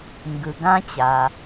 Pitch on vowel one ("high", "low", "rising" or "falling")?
low